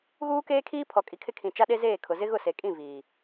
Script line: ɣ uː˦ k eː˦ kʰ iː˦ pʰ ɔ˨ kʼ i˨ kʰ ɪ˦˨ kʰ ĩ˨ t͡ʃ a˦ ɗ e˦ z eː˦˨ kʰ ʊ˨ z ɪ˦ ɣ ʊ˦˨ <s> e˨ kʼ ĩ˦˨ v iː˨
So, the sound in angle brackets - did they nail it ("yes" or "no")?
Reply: yes